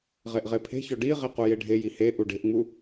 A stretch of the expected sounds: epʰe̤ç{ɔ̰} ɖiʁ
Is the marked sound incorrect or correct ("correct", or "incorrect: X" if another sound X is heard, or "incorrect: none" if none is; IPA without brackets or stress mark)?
incorrect: ɔ